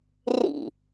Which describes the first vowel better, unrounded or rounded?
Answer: unrounded